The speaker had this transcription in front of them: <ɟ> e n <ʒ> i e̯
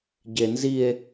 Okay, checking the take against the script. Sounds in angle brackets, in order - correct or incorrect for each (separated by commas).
correct, incorrect